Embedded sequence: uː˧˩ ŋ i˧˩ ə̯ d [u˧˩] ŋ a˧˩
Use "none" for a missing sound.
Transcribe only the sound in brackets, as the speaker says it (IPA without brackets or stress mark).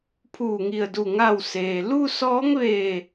u˧˩